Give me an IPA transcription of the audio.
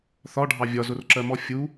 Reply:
θ ɒ ɖʱ ɑ vʲ ɒ z ʊ r ǁ ɜ m ɔ fʲ u

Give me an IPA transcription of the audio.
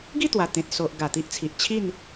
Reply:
ɡ i˥˧ t̪ w a˨˩ t̪ ẽ˨ t̚ s o˨ ʔ ɡ a˨˩ t̪ i˦ ʔ t͡sʰ i˨ ʔ t͡ɕʰ i˥˧ n

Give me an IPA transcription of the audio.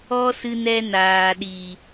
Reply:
ɔ˧ s ɨ˨ n ɛ˨ n aː˨ ɗ iː˨

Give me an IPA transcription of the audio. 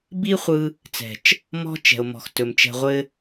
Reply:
b i˦ χʷ ɯ˧ | t͡s ɛ̤˨ t͡ʃ | m ɔ̤˦ t͡ʃ ɛ̤˨ o̯ m ɔ̤˨ x t ɵ˨ m t͡ʃ ɛ̤˧ ʁʷ ɘ˦

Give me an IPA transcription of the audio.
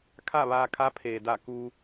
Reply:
kʰ a˥˨ ʋ aː˧ kʰ a˧˥ pʰ eː˩ d a˧˩ k u˧

